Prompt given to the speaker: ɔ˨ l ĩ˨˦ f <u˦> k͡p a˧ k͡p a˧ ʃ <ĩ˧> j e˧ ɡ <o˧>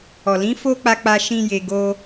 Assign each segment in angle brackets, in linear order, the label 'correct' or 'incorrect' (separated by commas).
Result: incorrect, correct, incorrect